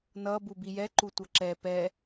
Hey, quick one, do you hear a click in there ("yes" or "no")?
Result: yes